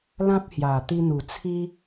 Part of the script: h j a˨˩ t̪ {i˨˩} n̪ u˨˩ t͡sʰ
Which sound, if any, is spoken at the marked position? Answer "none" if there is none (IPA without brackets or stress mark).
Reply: i˧